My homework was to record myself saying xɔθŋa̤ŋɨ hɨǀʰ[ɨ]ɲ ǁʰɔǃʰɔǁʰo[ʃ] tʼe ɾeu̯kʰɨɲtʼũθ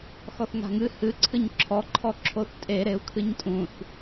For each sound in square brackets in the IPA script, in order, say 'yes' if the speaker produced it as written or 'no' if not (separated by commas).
yes, no